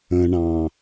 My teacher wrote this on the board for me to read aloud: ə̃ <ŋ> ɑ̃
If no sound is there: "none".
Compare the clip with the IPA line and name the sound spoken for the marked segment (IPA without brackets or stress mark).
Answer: ɳ